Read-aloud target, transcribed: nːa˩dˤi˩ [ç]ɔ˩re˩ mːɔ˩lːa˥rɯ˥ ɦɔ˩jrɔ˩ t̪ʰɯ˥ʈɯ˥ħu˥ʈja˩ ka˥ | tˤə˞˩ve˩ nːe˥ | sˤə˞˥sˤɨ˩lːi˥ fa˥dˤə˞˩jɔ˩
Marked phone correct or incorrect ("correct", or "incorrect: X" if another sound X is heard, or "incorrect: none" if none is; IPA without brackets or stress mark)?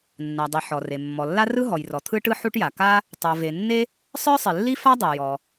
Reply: incorrect: ħ